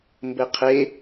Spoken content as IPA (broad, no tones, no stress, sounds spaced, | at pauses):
m b ɘ qʰ e